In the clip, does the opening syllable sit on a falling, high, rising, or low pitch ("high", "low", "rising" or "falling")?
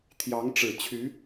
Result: rising